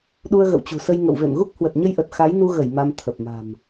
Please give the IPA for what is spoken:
ɗu˧ə̯ɣə̰˧˨wt͡ɕṳ˨˩sə˧j ŋə̰˧˨wvḛ˧˨mɣu˦˥k̚ hwə˨˩t̚ɲə˧jʔə˨˩t̚ xa˨˦jnu˧ɣə˧˩j ma˧mt̪ʰə˨˩p̚ma̤˨˩m

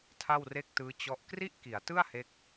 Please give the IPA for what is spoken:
tʰa˥˩wre˥˩k̚tɯː˦˥ t͡ɕɔ˦˥ʔ kri˥˩ʔki˩˦a̯tɯ˥˩a̯ he˦˥k̚

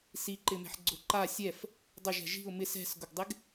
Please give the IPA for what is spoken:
siǃɪmɛ̤ħ ɡ͡ǀʊǃa sʲɛf | dˤʊʒɛ̤ ʒi̤ʊ̯ mɪs ɛ̤sɡʊɡdˤɪɡ

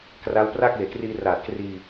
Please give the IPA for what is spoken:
kra˦˥wpra˥˩k̚ weː˨˩kriː˧raː˨˩t̚ kriː˧

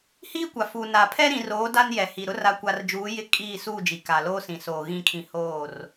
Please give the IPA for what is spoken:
hiː˦kʷa˨fuː˨ na˨pʰɛ˦ ɾĩ˨roː˨˦ da˦njɛ˨hi˨ɾʊ˦ ra˨kʷa˨rd͡ʒuː˨˦ jɪ˦ kʼiː˦˨suː˦˨d͡ʒi˨ ka˨loː˦sĩ˨soː˨ ɣĩ˨kʰĩ˨ hoː˦˨r

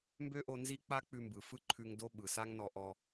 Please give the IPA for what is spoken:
mbø˥ʔo˧ nzi˥ k͡pa˥ k͡pʉ˧mbɯ˩fɯ˥ ǃʰʉ˧ŋ do˥ ɓɯ˩sa˥ŋnɔ˧ ʔɔ˧

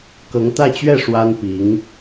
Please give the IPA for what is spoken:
kɤ˧˥ŋt̪ä˥˧t͡ɕɥɛ˥˩ ʂwa˥npi˧˥ŋ

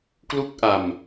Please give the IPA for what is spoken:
klu˥˩k̚ʔa˧m

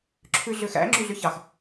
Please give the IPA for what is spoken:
ǁʰʉɮøxæ̰ ŋ͡ǁyɮyçɑx

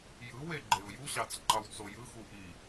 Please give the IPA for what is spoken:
jɯwe ɡ͡ǃeʊ̯juɕɑt͡s ŋ͡ǃɑwt͡sojɯxu ʔi

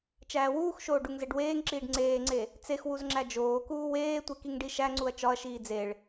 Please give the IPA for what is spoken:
t͡ʃæːwuːxʃoː ɖuŋzeɖweːŋǁiːɖ ŋ͡ǀeːŋ͡ǀe | t͡sex wuzŋ͡ǁæd͡ʒoːkuː weːtʷe kiŋɖiʃæŋ͡ǀuɐ̯ t͡ʃɒɐ̯ʃiː d͡zeɭ

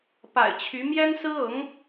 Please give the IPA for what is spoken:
pa̰˨˩ɪ̯t͡ɕʰy˧˥ mjɛ˥nsɹ̩˥ɤ˧˥ŋ

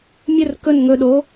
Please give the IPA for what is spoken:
mʲɵr kɵn ŋɵɗo

